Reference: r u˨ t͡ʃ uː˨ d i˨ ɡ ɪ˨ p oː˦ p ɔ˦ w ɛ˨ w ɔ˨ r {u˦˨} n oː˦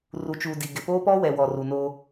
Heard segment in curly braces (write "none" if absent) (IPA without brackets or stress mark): u˨